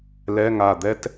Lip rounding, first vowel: unrounded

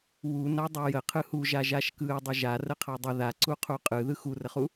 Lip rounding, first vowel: rounded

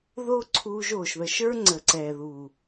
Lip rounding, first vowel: rounded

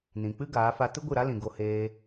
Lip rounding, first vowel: unrounded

